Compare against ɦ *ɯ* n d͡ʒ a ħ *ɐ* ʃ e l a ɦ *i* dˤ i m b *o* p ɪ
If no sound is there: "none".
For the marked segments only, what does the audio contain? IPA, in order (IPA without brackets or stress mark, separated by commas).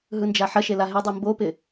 ɯ, ɐ, ɪ, o